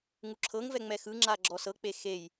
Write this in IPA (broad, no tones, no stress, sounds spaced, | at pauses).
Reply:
ŋ u ǁʰ ɤ ŋ v ɛ ŋ͡m ɛ x ɯ ŋ͡ǁ a ɡ͡ǁ ɔ s ɤ k͡p e x e j